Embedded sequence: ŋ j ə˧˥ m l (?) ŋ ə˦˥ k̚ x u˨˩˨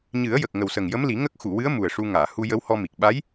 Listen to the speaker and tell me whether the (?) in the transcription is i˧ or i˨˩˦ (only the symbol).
i˨˩˦